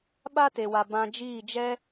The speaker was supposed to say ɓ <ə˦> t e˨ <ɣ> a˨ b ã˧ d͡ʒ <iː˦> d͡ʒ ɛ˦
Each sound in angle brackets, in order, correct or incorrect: incorrect: a˦, incorrect: w, incorrect: iː˦˨

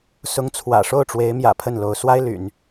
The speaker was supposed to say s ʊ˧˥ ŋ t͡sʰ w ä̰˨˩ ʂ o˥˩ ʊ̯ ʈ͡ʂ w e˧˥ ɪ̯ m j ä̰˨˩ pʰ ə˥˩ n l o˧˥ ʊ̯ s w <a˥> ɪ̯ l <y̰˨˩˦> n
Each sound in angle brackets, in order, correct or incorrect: correct, correct

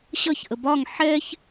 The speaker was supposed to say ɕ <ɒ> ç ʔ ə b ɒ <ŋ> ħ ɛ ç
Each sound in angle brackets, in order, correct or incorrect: incorrect: ʌ, correct

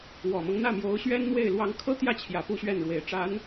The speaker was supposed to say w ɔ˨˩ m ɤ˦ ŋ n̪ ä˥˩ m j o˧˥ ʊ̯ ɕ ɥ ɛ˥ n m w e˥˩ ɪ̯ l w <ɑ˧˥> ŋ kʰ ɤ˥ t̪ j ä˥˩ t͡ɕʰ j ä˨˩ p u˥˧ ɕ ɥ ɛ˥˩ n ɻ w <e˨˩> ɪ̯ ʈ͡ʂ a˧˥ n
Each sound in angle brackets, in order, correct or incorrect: correct, correct

